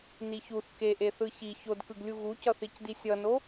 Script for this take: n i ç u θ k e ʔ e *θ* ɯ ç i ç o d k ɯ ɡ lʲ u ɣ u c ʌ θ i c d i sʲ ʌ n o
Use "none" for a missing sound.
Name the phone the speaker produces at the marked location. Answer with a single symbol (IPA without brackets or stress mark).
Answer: θ